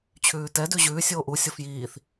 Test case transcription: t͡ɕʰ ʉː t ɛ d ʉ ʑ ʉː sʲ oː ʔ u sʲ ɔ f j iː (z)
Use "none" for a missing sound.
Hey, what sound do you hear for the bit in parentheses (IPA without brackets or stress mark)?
θ